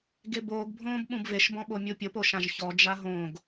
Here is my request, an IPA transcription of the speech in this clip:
ɡ e b oː ɡ bʱ õː b ɓ ũ b v e ʃ b ɔ̃ ɓ o mʲ u pʲ ʊ p o ʃ ã ʒ ç ɔ d͡ʒ a ɦ õ ɡ

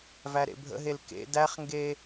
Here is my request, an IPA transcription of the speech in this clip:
v æ ɾ ḛ bʱ ə̰ ɦ e l k ḛ d æ χ ŋ ɡ e

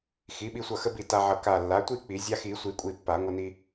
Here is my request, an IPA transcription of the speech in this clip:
x i˩˥ ɓ i˧ sʷ ʌ˧˩ x ə˧ b i˧˩ t a˧ ʕ ʌ˧˩ k a˧˩ lː a˩˥ tʷ i˥˧ k͡p i˨˩˦ zʲ a˧ x i˨˩˦ sʷ i˨˩˦ kʷʼ i˧˩ pː a˨˩˦ ŋʷ ə˧ n i˧

